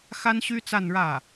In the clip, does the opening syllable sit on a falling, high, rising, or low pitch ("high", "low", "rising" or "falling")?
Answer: high